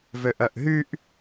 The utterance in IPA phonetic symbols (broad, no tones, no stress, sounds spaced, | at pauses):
v ø ʔ œ ʔ ɦ y ʔ